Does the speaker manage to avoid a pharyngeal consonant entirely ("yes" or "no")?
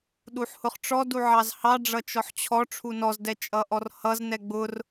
no